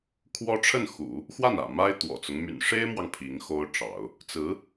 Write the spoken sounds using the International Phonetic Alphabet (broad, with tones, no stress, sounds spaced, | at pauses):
kʰ w ɔ˥ ʈ͡ʂʰ ə˥˩ n x ṵ˨˩˦ | x w a˥˩ n ä̰˨˩ m a˥ ɪ̯ t̪ w ɔ̰˨˩ t͡s ʊ˦ ŋ m y̰˨˩ n ʂ e˥ ɪ̯ m w ɑ˨ ŋ pʰ i˧˥ ŋ x o˥ ʊ̯ ʈ͡ʂ ɑ̰˨˩˦ ʊ̯ | t͡s ɹ̩˧˥